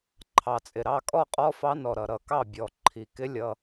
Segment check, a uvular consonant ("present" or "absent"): present